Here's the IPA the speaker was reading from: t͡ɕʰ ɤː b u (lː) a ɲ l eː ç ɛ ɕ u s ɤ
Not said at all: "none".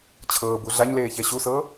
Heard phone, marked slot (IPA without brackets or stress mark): ɮ